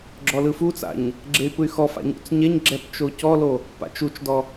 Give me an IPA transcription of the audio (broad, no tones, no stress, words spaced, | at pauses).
ɡ͡ǁɔlɯfut͡sa̰ɲ | ɡ͡ǁey̯pɯy̯xɔfa̰ ɲṵt͡sɲɛɲɡ͡ǁɛp t͡ʃocɔlo | pa̰t͡ʃut͡ʃdɔ